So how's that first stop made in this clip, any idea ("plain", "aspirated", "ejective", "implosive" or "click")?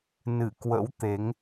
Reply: plain